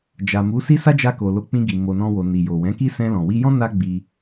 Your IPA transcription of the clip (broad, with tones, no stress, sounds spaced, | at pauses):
d͡ʒ a˨ m u˨˦ s i˦ s a˦ d͡ʒ a˧ k o˨ l o˨˦ k͡p ĩ˧ ɡ i˨ m o˧ n ɔ̃˦ w o˧ n i˨ j o˨ w ɛ̃˨˦ k i˦ s ɛ̃˧ l ɔ̃˨ w i˧ j ɔ̃˦ n a˦ ɡ͡b i˧